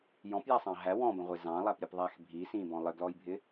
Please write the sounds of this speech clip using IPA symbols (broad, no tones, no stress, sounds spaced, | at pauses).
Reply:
j ɔ̃ p j æ sˤ ɑ̃ ɦ æ w ɔ̃ b ə̃ ʁʷ ɪ z ɑ̃ lˠ æ p ɾʲ ə p ðˤ æ x bʱ i s ĩ b ɔ̃ lˠ ɪ ɡ l ɔ j bʱ ɪ